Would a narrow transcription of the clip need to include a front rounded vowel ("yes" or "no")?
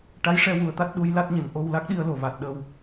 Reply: no